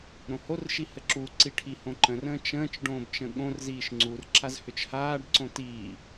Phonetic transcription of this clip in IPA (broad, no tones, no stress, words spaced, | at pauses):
ɾõhorʃi həǁuǀi ʈʰihõǃə̃rə̃ː t͡ʃə̃ːt͡ʃ ɖõːbt͡ʃə̃ɠõrziːʃ ŋ͡ǀur ǁazhʏt͡ʃhaːɖǀõ tiː